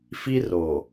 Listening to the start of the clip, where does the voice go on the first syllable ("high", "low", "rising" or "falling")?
high